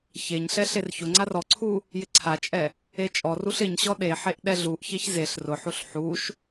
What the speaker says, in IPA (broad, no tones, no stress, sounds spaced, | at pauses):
ç e ɲ ɬ ɛ ɬ e r ç ʊ ŋ͡ǀ a r ɔ ǀʰ u | j ɪ ǀʰ a t͡ʃʼ ɛ | e t͡ʃʼ ɔ r u ɬ ɪ ɲ ɕ ɔ ɗ e ħ e ʔ ɗ ɛ ɮ u ʔ ç e ç z e ɬ r ʊ ħ u ɬ ħ u ʃ